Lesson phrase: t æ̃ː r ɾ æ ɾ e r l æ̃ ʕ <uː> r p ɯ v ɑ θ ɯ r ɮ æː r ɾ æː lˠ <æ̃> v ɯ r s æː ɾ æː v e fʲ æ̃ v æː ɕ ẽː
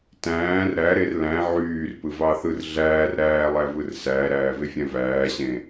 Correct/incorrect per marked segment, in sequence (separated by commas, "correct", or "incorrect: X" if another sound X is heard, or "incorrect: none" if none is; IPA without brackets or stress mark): incorrect: yː, incorrect: æ